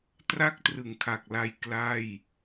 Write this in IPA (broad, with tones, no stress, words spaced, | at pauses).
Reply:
tra˥˩k̚trɯ˨˩ŋkʰa˨˩k̚la˧j kla˥˩j